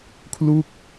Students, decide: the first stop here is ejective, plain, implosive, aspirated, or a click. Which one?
aspirated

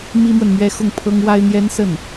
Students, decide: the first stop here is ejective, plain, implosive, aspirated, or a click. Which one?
aspirated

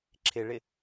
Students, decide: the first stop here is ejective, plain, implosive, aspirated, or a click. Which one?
click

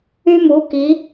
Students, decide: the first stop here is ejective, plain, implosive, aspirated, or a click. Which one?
plain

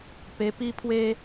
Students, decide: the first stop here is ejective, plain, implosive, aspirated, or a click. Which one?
plain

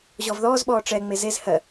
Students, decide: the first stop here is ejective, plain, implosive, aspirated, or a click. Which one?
implosive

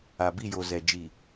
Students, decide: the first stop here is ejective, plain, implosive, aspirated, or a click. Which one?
plain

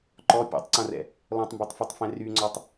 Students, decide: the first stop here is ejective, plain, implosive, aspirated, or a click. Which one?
click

